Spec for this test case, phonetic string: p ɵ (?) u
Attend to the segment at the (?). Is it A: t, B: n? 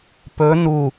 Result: B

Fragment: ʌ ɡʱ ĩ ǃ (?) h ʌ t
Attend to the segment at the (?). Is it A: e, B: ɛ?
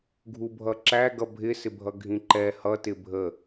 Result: B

